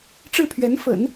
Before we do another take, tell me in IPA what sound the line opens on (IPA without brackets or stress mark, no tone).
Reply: ʈ͡ʂ